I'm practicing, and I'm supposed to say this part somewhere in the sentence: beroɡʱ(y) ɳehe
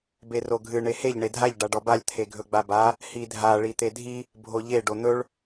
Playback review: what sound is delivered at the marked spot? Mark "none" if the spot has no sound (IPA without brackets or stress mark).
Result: ɨ